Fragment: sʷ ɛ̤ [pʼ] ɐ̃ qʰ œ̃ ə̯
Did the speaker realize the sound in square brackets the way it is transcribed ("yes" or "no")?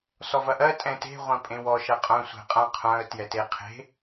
no